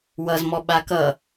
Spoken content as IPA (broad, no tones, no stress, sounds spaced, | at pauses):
w ʌ z m ɔ ɓ a k ʌ